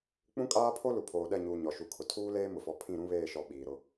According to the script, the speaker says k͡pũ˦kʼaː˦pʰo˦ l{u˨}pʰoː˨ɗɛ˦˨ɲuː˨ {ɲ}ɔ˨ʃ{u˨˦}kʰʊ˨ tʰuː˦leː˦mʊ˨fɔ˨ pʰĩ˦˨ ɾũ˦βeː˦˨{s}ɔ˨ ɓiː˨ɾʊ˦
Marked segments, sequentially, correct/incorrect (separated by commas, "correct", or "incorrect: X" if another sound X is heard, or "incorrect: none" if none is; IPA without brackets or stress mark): correct, correct, incorrect: u˨, incorrect: ʃ